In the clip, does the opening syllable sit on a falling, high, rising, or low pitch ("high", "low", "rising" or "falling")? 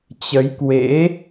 rising